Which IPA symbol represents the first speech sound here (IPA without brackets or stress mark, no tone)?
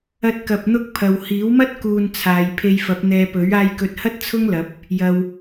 ɐ